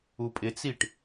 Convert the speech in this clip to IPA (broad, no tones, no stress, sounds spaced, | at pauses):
u pʼ ɪ t͡s i ʈ